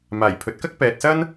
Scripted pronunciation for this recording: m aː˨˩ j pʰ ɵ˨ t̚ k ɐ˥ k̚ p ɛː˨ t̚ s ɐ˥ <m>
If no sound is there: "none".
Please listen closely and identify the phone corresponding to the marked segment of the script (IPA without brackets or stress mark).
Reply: n